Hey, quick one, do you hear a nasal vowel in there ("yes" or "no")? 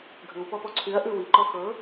no